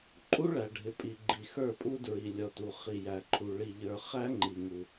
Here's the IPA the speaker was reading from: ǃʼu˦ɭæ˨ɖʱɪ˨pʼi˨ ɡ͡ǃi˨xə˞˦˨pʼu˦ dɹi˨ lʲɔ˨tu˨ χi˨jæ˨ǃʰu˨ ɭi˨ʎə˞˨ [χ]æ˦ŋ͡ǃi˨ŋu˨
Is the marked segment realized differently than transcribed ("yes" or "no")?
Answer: no